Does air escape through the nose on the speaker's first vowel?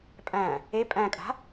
yes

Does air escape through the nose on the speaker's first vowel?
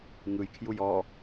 no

